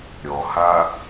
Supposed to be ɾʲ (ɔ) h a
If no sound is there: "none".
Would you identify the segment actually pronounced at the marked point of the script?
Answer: ɔ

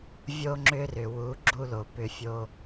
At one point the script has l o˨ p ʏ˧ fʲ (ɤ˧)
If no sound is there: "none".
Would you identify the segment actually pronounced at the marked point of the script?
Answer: o˧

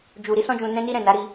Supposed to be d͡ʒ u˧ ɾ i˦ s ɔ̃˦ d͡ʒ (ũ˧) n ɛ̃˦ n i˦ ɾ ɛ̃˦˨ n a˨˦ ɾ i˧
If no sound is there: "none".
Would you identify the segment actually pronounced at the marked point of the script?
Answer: ũ˧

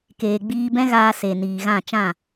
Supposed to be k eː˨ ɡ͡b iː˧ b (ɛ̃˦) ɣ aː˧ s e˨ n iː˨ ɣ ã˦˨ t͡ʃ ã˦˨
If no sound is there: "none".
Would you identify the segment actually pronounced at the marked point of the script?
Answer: ɛ̃˦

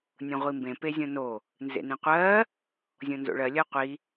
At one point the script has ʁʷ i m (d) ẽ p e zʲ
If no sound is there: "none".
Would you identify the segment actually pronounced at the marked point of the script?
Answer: b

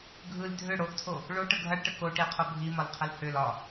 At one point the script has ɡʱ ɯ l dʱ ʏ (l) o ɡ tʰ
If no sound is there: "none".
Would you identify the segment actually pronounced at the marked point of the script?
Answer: ɽ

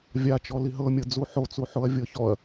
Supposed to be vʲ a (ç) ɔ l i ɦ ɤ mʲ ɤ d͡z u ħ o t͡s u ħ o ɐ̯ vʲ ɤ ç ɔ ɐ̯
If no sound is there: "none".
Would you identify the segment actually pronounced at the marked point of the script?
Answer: t͡ʃ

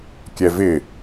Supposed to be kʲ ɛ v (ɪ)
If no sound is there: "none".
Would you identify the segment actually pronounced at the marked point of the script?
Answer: ɪ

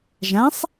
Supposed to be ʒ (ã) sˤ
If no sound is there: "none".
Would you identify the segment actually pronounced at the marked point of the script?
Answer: ã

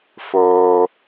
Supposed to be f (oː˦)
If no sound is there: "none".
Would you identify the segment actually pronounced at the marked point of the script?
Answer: oː˦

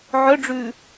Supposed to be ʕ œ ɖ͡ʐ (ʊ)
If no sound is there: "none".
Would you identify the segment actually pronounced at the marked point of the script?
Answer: ʉ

